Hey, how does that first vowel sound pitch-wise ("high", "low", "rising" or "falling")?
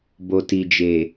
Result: low